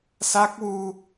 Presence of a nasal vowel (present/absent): absent